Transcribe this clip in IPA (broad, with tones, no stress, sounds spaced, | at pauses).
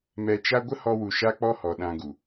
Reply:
m ɛ˧ t͡ʃ a˦ ɡʷ ə˦ h ɔ˧ w u˨ ʃ a˦ k͡p ɔ˦ h ɔ˨ ɗ ã˧ ɡ u˨